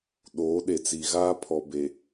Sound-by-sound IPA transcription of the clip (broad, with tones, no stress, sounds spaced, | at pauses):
ɗ oː˨˦ ɗ e˨ t͡s i˨ ɣ aː˦ pʰ ɔ˨ b e˨